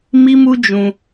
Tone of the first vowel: high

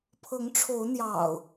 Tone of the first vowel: rising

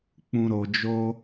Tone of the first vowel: low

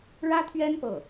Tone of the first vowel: high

